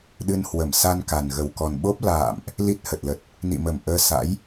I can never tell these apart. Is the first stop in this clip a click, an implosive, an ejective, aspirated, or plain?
implosive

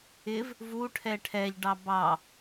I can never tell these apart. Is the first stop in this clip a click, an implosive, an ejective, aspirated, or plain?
aspirated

